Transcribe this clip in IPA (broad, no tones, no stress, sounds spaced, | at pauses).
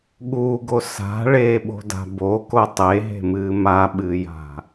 ɠ u ɡ o s a̤ ɭ eː ɓ o̤ d a̤ b o k o tˤ e ɦ e̤ m ɨː m a ɓ ɨː j a̤